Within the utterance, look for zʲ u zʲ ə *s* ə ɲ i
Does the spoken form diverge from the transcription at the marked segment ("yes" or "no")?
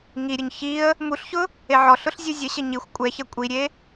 yes